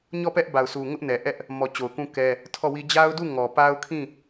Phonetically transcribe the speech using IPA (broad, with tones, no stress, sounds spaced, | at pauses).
ɲ ɔ˦˨ p ɛ˦ ʔ b a˨ ʊ̯ s u˨ ŋ ʊ˦ ʔ n ɛ˨ ʔ ɛ˦ ʔ | m ɔ˨ t͡ɕ o˨ ʊ̯ k ũ˦ k ɛ˦ | tʰ ɔ˦˨ w i˦ d͡ʑ a˦ ʊ̯ d u˦˨ ŋ ɔ˨ p a˦ ʊ̯ kʰ ĩ˦˨